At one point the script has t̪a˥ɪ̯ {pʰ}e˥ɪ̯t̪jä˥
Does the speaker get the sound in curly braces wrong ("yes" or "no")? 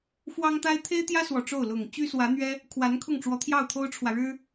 yes